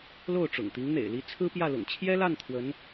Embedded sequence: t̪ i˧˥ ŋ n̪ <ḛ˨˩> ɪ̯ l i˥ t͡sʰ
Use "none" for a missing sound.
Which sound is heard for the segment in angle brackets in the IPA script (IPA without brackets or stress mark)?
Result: ḛ˨˩